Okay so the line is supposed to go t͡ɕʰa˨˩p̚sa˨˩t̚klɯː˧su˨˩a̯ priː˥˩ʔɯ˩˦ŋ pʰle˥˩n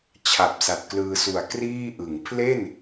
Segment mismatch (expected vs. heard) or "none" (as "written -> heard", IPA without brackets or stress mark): p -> k